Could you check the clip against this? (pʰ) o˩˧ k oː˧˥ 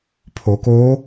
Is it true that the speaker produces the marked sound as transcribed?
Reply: yes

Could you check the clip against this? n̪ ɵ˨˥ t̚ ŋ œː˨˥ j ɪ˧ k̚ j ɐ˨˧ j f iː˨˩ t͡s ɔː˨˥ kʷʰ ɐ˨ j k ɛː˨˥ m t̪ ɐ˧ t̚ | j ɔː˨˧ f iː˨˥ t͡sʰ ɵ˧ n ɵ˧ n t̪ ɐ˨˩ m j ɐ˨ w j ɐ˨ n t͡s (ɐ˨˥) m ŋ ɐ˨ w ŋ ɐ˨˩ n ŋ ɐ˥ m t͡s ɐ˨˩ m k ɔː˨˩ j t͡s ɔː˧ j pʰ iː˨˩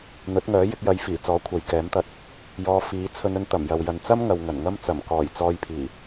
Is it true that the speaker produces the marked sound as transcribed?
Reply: no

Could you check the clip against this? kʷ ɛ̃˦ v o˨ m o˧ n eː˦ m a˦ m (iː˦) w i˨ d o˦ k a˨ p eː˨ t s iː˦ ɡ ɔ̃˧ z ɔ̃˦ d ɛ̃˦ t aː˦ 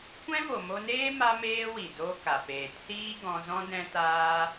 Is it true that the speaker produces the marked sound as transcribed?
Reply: no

